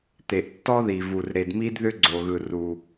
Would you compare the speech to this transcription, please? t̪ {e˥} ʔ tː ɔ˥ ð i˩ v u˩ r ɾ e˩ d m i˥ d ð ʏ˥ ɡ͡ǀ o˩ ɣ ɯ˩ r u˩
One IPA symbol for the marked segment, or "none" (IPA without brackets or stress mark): e˩